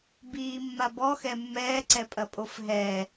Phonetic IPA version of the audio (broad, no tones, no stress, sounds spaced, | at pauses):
b iː mː a b ɔ x ɛ mː ɛː ǀ ɛ pʼ ɐ pʼ o f ɦ ɛː